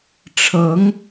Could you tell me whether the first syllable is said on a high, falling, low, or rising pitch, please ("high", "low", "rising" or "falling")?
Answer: rising